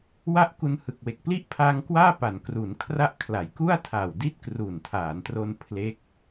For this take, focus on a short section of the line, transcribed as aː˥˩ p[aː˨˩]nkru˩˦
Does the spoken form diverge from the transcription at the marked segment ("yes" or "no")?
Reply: yes